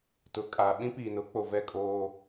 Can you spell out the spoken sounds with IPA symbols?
tʊ˨kʼa˨ ɓĩ˦piː˨nʊ˨˦k͡po˨ vɛ˦˨kʼoː˦

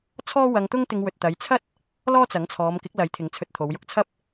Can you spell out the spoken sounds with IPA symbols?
t͡sʰɔː˥ wɐ˧ŋt̪ʊ˥ŋ t̪ɪ˧ŋwɵ˨t̚ t̪ɐ˨˧jt͡sʰɐ˥t̚ | lɔː˥t͡sɐ˨˥ŋt͡sʰɔː˨˧m kɪ˨˥k̚lɐ˨˥j t̪ʰɪ˨˧ŋt͡sʰɵ˧t̚t̪ʰo˨˧w jʊ˨˥k̚t͡sʰɐ˥p̚

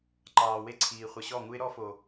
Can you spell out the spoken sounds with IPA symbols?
ǃɑː˨we˦ǀʰiː˨ χʷə˨ɕɔ˦˨ŋu˦ɪ̯ ɾɔ˦fo˨

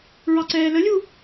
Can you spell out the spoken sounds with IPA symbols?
ɹɑǀɛːləlʲu

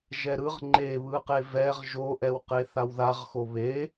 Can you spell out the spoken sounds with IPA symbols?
ʒɛɾɯʁ ŋ͡ǃeβɯqe vɛʁ ʒoʔɛw qeθawðaʁxo βe

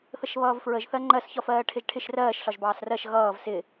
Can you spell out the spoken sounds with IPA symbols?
θəʃβʌːvfɹəʒ θɜŋ͡ǃɜs çɒfɜːʈʰɪʒʈʰɪʃ rɜːʃ ɬɒʒbɑːsrɜʃ ɣʌːv sɪ

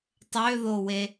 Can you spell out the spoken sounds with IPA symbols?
tˤøðowe

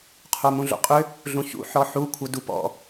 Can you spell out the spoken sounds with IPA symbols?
qʰomũɮo̰qʼʏ | ɮũçṵ ħɔħu kʷʰədupɔ̰

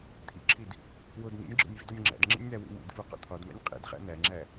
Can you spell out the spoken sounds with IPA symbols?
t̪ʰḭǁʰid | wod nḭnʲɡ͡ǁo̰nʲ vḭdɒnʲŋ͡ǁæ̰dŋ͡ǁḭnʲ n̪æwḭmḭdfu qo̰t̪ʰɒdmæ̰nʲ qʼḭdχæ̰ n̪æŋ͡ǁæ

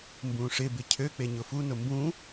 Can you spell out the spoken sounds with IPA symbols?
mbũʂɪ bɪcʰø k͡peɲʊfu nʊmbũ

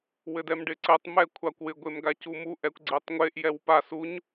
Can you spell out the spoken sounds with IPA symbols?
wɘdɛmɖɪǀɘtˤ mɛkʷʰakʷwɪ ɡʷemɡacumu ʔɛkʷɡ͡ǀetˤŋʷeʔ jɛwpas uɲ

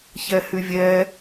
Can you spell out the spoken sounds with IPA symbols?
çɛhyvʲɛ

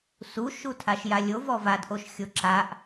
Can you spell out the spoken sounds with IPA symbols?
su ʃutʰaʃjalʲov ɔvadʔoʃ xʲoǁaʔ

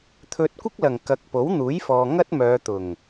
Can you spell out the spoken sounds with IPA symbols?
t̪ʰɵ˧t̚ kʷɪ˥k̚lɐ˨ŋ kɐ˨˥k̚po˨˥wn̪uː˨˥j fɔː˧ŋɐ˥t̚ mœː˨˧t̪ʊ˨˩ŋ

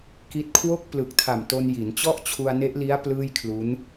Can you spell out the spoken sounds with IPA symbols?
ki˦˥t̚ kʰwo˥˩k̚ plɯ˨˩k̚tʰa˨˩m to˧nji˩˦n t͡ɕɔ˥˩ʔt͡ɕʰu˧a̯ne˦˥ʔli˦˥a̯ plɯː˥˩jkʰlu˦˥n

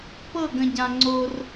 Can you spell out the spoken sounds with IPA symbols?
pɤ˦˨ɡə̃˨ɟã˨ ŋ͡ǀo˦r

